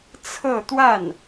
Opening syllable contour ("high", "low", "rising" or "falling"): falling